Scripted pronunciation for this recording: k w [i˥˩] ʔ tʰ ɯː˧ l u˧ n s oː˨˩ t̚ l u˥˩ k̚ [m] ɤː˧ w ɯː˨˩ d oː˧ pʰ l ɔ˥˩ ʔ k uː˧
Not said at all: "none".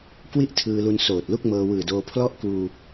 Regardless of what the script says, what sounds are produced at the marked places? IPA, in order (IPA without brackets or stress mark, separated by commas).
i˥˩, m